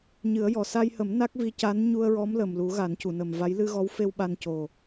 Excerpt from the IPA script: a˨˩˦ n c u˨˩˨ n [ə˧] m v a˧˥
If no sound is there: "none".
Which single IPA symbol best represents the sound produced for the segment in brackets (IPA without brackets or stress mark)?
ə˨˩